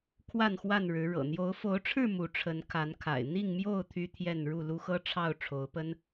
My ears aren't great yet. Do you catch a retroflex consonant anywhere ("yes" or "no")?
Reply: yes